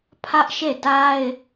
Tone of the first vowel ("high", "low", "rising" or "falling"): high